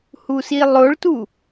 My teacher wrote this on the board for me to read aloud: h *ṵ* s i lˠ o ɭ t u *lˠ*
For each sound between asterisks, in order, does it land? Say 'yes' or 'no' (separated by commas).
no, no